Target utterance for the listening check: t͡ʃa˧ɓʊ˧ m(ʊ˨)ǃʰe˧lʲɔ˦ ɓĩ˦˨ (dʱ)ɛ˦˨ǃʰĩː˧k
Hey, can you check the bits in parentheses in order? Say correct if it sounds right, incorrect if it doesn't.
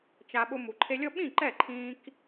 incorrect: u˨, incorrect: ǃ

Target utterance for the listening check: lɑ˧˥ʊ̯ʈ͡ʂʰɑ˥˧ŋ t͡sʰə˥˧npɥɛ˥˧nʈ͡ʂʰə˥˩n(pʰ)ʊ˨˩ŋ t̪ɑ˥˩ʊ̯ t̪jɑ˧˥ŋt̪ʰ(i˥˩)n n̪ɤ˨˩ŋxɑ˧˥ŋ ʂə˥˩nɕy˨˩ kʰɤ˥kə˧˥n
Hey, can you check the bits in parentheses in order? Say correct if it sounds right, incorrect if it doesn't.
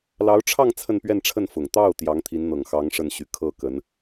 incorrect: f, incorrect: i˧˥

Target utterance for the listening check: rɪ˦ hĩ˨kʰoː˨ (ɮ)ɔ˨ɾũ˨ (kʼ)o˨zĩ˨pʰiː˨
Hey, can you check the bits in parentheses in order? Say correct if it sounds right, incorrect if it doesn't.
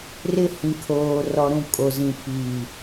incorrect: r, correct

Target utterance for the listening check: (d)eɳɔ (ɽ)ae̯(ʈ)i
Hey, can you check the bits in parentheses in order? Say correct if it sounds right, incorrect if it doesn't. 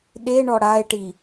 incorrect: ɗ, correct, correct

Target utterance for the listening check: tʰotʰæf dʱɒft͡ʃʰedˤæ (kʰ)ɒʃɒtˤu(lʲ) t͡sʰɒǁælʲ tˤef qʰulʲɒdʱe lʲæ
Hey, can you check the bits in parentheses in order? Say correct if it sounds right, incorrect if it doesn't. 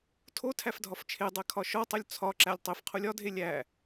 correct, correct

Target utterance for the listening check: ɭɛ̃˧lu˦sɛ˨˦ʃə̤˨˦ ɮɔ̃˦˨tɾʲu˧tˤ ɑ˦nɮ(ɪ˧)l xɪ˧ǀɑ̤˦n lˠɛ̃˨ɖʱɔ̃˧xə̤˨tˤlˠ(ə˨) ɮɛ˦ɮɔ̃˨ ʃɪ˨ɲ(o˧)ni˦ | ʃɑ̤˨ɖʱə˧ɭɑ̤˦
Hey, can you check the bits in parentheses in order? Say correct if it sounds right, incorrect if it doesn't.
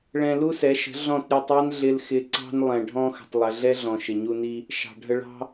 correct, correct, incorrect: u˧

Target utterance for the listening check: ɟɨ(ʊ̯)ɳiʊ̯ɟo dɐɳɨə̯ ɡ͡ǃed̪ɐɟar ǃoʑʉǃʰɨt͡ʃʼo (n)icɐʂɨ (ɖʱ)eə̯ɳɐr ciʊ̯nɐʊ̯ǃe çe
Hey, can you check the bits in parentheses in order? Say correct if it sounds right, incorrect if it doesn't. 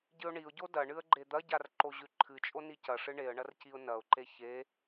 correct, correct, incorrect: ɳ

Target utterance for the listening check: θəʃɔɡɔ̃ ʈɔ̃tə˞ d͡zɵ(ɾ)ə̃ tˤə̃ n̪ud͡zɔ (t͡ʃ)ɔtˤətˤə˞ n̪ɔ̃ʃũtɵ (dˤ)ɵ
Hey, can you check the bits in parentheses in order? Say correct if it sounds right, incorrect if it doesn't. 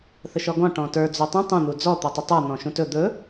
incorrect: tˤ, incorrect: t̪, incorrect: d̪

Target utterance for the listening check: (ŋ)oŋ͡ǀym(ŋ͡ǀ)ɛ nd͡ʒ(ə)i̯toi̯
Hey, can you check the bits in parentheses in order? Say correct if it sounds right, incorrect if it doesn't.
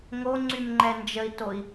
correct, incorrect: ŋ͡ǃ, correct

